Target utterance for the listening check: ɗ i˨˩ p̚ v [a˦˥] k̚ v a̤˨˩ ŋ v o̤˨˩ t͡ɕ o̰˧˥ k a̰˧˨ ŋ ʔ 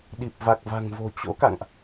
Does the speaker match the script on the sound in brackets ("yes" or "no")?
no